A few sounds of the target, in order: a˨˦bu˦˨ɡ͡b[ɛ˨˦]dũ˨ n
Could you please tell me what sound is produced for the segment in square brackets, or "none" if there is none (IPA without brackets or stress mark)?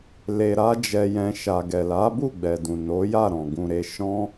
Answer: ɛ˨